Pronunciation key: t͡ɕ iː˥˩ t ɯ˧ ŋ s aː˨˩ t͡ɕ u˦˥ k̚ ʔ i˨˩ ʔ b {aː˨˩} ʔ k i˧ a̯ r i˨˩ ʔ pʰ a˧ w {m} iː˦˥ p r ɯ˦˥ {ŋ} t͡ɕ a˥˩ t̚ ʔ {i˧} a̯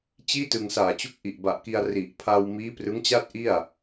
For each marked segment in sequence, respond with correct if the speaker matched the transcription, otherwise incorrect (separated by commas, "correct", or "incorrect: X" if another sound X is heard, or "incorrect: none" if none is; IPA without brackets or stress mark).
incorrect: a˨˩, correct, correct, incorrect: i˥˩